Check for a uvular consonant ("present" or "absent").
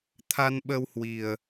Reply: absent